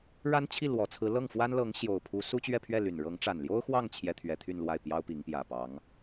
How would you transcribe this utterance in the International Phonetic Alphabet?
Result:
ɻ a˥ n t͡ɕʰ i˥˩ l w ɔ˨˩ t͡sʰ ɹ̩˧˥ l ɤ˥˩ ŋ f w a˥ n l ɤ˧˥ ŋ ɕ j o˨˩ ʊ̯ pʰ u˧˥ s u˥ t͡ɕ ɥ ɛ˥˧ pʰ ɥ ɛ˥˩ l y˨˩ n ɻ ɤ˧˥ ŋ ʈ͡ʂ a˨˩ n l j o˥ ʊ̯ x w ɑ˥˩ ŋ t͡ɕʰ j ɛ˥ t̪ʰ ɥ ɛ˧˥ t̪ʰ y˥˧ n l w a˥˩ ɪ̯ p j ɑ˥ ʊ̯ p i˧˥ ŋ p j ä˨˩ p ɑ˧˥ ŋ

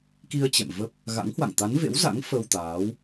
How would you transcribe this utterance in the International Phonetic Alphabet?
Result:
k i˧ ə̯ t͡ɕ ɛ̰˧˨ m v ə˦˥ p̚ | ɣ a̰˧˥ ŋ h w a̰˧˨ ŋ t̪ a˨˦ n v ḛ˧˥ w z a̰˧˥ ŋ f ə˧ w t̪ aː˨˦ w

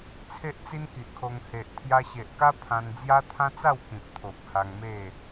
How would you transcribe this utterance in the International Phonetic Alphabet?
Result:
t͡sʰ e˦ ʔ t͡s i˦ n k i˨ ʔ kʰ o˧ ŋ h e˨ ʔ t̪ʰ j a˧ ɕ e˨ ʔ k a˦ pʰ ã˧ n d͡z j a˦ t̪ʰ ã˦ t͡s a˥˧ w k ĩ˨ p̚ t̪ʰ o˨ p̚ h a˧ ŋ m e˥˧

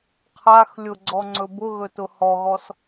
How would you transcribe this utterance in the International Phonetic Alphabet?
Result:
qʰ a x lʲ ʊ ɡ͡ǀ ɔ ŋ͡ǀ ɵ b ʊ ɣ ɵ t ʊ h ɔ ɣ ɔ s

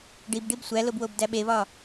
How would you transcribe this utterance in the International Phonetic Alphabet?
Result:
ɖ i b ɖ i b sʷ æ l o b w o b d æ ɓ e β ɒ

